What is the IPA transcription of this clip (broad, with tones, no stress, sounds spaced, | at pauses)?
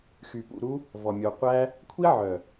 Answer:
x y˨ p ṵ˦˨ ɾ u˦ | v ɔ˨ mʲ o˨ qʷ æ˦ | kʷʰ i˦ ʕ œ˨